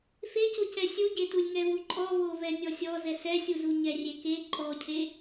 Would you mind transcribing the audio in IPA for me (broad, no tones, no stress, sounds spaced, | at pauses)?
f e c o c ɛ sʲ u ɟ e t u lʲ ŋ ɛ v u ǃʼ ɔ v o v ɛ nʲ ɔ sʲ ɔ z ɛ s ɛ sʲ u z u ɲ ɛ rʲ e k e ǃʼ ɔ cʰ e